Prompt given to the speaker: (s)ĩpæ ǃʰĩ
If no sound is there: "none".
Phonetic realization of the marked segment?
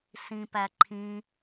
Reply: s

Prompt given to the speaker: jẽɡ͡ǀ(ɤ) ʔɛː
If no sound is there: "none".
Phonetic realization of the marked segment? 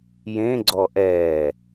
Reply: ɔ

